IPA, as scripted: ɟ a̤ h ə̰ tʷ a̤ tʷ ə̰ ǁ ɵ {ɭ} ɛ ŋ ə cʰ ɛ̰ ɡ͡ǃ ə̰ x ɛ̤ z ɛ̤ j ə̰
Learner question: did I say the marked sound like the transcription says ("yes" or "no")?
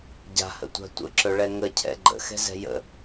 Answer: yes